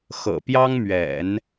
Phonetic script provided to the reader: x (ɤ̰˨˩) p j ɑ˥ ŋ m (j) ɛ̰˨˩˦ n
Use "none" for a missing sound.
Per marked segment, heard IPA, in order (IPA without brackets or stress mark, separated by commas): ɤ̰˨˩, ɥ